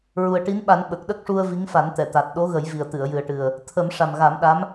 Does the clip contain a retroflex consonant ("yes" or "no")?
yes